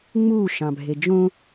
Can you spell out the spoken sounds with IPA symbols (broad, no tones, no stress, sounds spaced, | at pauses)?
ŋ͡m u ʃ ɑ̃ bʱ e d͡ʒ õ